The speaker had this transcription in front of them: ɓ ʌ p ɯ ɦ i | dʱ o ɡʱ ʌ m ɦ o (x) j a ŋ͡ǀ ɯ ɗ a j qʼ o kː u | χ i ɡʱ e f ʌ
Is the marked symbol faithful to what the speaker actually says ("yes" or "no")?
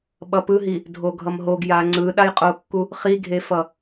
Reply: no